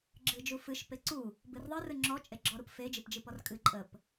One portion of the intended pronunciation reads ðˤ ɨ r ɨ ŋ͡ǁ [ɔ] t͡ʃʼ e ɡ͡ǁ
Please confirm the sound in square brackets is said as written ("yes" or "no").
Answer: yes